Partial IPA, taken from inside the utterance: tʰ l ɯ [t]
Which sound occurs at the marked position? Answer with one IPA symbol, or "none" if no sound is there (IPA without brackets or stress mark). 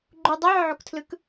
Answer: k